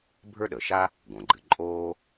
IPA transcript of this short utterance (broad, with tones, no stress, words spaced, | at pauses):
bʱə˞˥ɗəː˩ʃa˥ | ɡõ˩ɡ͡ǃɨ˨ǃʼoː˥